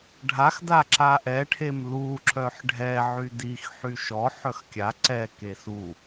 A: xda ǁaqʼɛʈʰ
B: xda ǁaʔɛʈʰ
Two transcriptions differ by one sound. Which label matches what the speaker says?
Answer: B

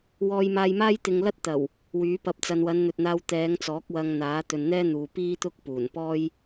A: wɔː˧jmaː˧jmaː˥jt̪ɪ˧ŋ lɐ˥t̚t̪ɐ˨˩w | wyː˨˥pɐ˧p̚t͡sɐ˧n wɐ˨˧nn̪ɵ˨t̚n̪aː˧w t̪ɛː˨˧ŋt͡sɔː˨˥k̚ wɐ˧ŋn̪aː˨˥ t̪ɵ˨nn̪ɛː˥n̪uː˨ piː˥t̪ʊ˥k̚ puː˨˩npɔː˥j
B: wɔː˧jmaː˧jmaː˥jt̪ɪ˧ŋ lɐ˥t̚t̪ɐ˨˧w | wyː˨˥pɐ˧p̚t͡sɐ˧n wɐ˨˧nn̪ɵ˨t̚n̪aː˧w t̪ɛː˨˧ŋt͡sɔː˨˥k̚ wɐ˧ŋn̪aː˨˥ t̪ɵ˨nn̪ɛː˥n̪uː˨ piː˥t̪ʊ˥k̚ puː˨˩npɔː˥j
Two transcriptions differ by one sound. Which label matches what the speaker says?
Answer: A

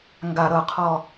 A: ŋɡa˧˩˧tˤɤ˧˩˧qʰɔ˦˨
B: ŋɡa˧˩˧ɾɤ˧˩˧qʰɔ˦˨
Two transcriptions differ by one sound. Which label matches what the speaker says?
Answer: B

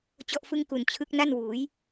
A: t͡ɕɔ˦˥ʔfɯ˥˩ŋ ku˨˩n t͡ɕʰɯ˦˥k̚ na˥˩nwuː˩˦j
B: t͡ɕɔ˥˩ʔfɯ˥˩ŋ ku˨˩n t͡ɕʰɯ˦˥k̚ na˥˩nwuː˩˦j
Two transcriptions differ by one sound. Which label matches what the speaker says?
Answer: B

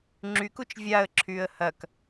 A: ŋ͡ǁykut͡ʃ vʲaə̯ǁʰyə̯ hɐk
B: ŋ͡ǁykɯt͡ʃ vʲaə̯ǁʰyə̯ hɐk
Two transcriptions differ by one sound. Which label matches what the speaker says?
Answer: A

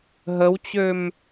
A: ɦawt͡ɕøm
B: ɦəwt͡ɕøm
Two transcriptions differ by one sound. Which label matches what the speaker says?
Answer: B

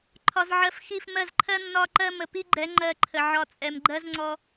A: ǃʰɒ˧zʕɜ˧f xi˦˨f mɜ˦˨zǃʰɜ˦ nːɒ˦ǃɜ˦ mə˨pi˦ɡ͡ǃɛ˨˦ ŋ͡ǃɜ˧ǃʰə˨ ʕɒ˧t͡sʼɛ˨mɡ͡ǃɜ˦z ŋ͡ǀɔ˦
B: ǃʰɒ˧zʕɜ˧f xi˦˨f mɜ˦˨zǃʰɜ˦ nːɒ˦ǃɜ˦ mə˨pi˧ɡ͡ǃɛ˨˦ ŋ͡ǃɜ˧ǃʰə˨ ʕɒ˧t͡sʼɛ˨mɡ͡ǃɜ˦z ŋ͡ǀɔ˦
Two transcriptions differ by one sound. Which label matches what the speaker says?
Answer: A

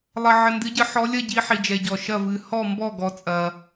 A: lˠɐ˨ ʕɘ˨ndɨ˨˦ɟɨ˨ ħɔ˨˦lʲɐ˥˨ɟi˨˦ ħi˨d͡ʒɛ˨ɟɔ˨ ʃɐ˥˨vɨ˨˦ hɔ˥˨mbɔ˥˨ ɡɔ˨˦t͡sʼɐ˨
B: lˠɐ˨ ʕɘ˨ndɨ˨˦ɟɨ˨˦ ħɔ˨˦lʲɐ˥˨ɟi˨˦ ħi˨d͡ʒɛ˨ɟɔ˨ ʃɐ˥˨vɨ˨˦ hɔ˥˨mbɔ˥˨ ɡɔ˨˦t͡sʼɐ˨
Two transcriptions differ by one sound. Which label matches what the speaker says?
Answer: B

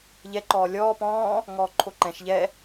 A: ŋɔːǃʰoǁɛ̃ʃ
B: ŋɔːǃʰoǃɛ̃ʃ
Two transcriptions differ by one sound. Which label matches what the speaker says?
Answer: B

